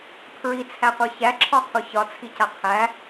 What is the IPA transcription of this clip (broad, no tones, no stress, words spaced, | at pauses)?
pʰɹit͡sʰæqʷə˞ çæǁʰɒqʰu çɒt͡sʰica qʰæ